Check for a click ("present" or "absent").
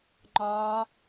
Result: present